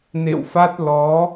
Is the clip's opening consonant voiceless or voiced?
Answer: voiced